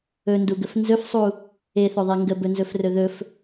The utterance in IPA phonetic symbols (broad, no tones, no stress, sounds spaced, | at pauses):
ɵ n d u ɡ ə f n z ɵ f sˤ u | e θ ɵ ðˤ e ŋ ɡ ə b ɵ n z ɵ f r ɵ ð ɵ f